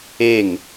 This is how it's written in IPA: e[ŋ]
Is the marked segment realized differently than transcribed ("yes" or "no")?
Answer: no